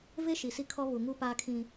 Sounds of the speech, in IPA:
ve˦ ʃi˨si˦ kʰɔ˦ βu˨ŋu˦paː˦kʰĩ˦

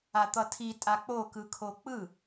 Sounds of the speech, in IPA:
at̪ʌtʰi tʼak͡pokɯkʰo k͡pɯ

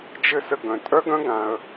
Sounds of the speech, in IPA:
d͡ʒɘ˥sə˧ɡœ̃˩ tʼœ˥ɡœ̃˥ɡã˩ə̯

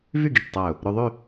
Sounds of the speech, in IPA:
vy˥˧ɡi˧˩ʈ tˤæ˧˩ʊ̯ | ɾʉ˧ðˤy˥˧

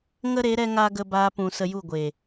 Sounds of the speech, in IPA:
ŋə˦ɾe˨˦ ɾɛ˧ŋa˧ ɡə˧baː˧pũ˨ sə˧ju˦˨ɡʷe˨

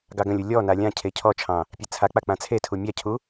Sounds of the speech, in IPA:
ɡɑɡə̃lʲu lʲɔna lʲãcʰe cʰɔt͡ʃʰɑ̃ | pʲet͡sʰak͡pa k͡pãt͡sʰetʰu mʲacʰu

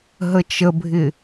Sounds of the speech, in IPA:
ɦət͡ʃəbʱɪ

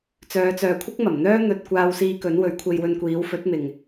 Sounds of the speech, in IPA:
t͡sœː˨˧t͡sœː˨kʷʰɪ˥k̚ mɐ˨˩mn̪œː˥n̪ɵ˧t̚ kʷaː˧wsiː˧ kɵ˨˥n wɵ˨˥ɥkʷʰe˧jwɵ˧nkʷiː˨˥w fɵ˨˥t̚mɪ˨ŋ

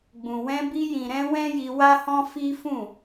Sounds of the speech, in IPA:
ɡ͡bũ˨wɛ̃˧ bi˧jĩ˨ɾɛ̃˧ wɛ̃˦ji˧wa˦hɔ̃˦ fi˦fũ˦˨

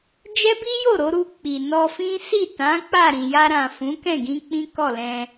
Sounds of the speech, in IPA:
d͡ʒɛ˦bi˦jo˦˨ɾo˧ ɾu˧k͡pi˨ nɔ˧fĩ˦ si˦˨tã˨˦ k͡pa˦˨ɾĩ˨ja˧ɾã˨ fũ˨˦kɛ̃˦˨ɡĩ˧ k͡pĩ˦kɔ˦˨lɛ̃˧

